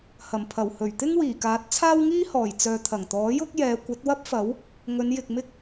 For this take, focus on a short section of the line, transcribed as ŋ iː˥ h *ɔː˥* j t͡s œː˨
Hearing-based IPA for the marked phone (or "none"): ɔː˨˩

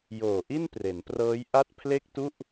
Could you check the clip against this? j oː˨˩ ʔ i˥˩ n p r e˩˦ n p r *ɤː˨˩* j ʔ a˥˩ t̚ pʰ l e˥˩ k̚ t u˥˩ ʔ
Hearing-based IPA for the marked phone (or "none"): ɤː˦˥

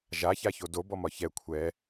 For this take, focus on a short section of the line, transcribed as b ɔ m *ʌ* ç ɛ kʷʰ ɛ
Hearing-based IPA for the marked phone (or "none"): ɒ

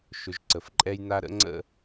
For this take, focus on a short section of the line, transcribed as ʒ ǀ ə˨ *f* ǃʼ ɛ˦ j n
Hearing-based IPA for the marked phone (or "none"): f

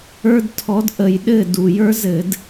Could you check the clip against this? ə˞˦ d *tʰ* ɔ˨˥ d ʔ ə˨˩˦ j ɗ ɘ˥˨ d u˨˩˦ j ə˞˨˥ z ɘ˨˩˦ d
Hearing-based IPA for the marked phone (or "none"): tʰ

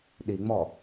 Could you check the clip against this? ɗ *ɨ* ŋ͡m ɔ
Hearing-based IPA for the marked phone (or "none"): i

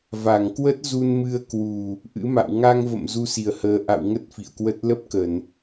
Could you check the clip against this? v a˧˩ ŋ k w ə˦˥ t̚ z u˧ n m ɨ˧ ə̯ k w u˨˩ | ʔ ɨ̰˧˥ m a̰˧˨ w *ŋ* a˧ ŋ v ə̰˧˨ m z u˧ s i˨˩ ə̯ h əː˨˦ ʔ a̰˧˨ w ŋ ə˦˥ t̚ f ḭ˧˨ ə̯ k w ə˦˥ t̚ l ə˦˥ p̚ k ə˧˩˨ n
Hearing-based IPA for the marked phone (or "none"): ŋ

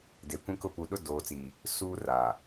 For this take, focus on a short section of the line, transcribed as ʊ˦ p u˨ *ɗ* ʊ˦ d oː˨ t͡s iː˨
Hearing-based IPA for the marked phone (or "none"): ɗ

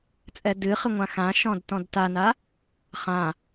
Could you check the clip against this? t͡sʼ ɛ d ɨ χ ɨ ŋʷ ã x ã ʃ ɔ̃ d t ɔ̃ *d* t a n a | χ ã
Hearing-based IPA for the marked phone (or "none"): d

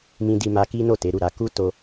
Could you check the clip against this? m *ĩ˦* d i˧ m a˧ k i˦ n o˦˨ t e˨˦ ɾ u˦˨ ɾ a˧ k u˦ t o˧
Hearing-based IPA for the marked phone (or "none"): ĩ˧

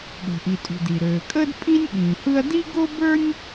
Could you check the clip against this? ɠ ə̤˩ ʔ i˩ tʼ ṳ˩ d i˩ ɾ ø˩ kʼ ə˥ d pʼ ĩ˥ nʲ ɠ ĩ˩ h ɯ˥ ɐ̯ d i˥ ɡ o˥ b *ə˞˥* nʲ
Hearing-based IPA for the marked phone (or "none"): ə˞˥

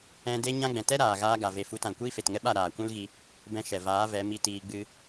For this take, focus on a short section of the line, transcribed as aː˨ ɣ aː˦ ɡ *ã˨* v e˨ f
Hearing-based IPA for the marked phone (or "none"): a˨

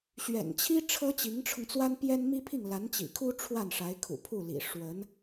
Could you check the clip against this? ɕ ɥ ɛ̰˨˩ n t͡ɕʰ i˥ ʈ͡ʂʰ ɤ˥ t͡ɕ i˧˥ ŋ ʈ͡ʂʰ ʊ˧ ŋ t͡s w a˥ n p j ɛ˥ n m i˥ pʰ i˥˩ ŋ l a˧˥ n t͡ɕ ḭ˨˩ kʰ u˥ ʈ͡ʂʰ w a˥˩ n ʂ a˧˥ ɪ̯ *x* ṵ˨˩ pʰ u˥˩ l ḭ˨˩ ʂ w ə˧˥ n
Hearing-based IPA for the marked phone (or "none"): kʰ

